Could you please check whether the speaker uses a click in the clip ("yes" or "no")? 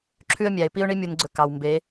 yes